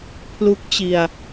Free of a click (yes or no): yes